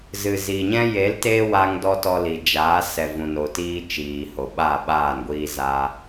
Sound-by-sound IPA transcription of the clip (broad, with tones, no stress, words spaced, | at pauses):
zɨ˨zi˨ɲɛ̃˦ je˨˦l te˦wa˧ŋ dɔ˦tɔ˧li˨ d͡ʒaː˨˦ sɛ˨vũ˨no˨tiː˧ t͡ʃiː˨ho˨ɓa˦˨ɓaː˦˨n ɡʷiː˧za˧